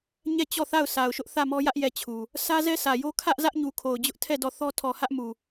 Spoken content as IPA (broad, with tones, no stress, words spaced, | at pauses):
ɲɛ˦˨t͡ɕɔ˦˨θa˦˨ʊ̯ sa˨ʊ̯ʃʊ˦ʔ θä˦˨mɔ˦jä˦ʔ jɛ˦˨t͡ɕʰu˨ | sʰä˦zɛ˦sʰä˨jo˦ kʰä˦ʔzä˦ʔɲu˨ kʰo˨ʊ̯d͡ʑʊ˦ʔtʰɛ˦˨ dɔ˦˨θɔ˦ tʰɔ˨hä˦ʔmu˨